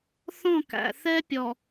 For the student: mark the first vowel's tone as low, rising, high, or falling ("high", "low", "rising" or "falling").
falling